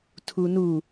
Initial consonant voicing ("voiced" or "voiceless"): voiceless